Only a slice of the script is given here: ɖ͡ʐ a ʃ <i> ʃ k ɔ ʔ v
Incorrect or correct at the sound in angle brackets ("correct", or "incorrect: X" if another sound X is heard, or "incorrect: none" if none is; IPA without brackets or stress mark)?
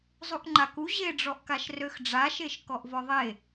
incorrect: e